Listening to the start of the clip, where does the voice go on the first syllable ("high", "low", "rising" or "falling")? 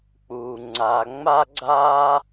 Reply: low